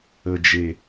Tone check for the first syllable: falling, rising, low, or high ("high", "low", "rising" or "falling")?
low